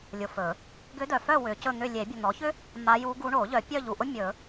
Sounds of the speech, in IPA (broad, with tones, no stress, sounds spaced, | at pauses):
lʲ ʊ˨ f ɵ˨˩˦ | ɡ ʏ˧˥ d œ˨ f œ˥˨ w ʏ˨˩˦ c ɵ˥˨ n̪ ʏ˥˨ lʲ e˨˩˦ bʲ ɵ˨ n̪ ɔ˩˥ ç ʏ˥ | m a˧˥ j u˧˥ ɡ u˧˥ ɳ o˨˩˦ ʎ œ˨˩˦ pʲ œ˥˨ ʎ u˨ ʔ ʊ˥ mʲ ɵ˨˩˦